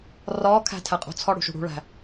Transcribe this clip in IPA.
rɒkʰæ̤ tʰæqʼo̤t͡sʰɒ ɽṳʃṳɽṳɭæ̤

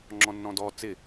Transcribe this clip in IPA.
ŋ͡ǁɔ̃nːɔ̃dɔ t͡sɪ

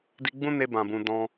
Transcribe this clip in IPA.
di˧ɡ͡bũ˦ne˧ bã˨bũ˨ dɔ̃˧

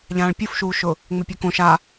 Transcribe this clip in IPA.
ʎãːɭpʲufʃuːʃʊ | ŋ͡mepʲɛkõ ʃa

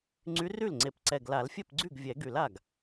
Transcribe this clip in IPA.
ŋ͡ǀy˧˥ry˥˩lŋ͡ǀe˨˩˦p ǀɛ˨˩ɡla˨˩˦lfʲɛ˥˩pɡ͡ǀy˥˩ɡ vʲɛ˨˩˦ɡy˨˩˦l a˥˩ɡ

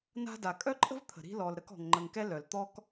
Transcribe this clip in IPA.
na̤˦da˩ kʼœ˥ǃʼə̤˥vt̪ʰə̤˩ ɾi̤˦lɔ˩l ɾə˦kɔ̤˩ŋŋ͡ǃə˨ŋkɛ˥ lœ˩l t̪ɔ˥k

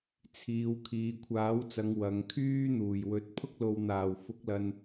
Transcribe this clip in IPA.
t͡sʰiː˨w kʰiː˨kʷʰaː˨˥wt͡sɐ˨˧ŋ wɐ˨ŋ kʰyː˥ n̪uː˨˩jwɵ˨˥t̚ pʰʊ˥k̚lo˨wn̪aː˨˩w fʊ˨˥k̚lɐ˨n

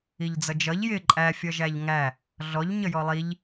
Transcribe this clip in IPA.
iʎd͡zʌd͡ʒʌʎ jɪ ǃʼæ fʲʌʒæʎŋæ | ɮɔʎ ɲəjɔlˠiʎ

